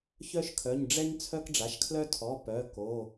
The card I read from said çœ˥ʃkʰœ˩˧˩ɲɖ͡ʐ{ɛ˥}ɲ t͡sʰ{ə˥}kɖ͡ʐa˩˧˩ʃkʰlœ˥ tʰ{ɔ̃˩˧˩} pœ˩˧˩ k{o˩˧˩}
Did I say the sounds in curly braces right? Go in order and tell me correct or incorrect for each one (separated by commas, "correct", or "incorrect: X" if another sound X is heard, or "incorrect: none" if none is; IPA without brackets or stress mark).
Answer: correct, incorrect: œ˥, incorrect: ɔ˩˧˩, correct